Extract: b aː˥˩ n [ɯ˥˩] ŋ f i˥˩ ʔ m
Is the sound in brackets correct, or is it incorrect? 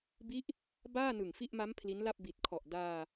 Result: incorrect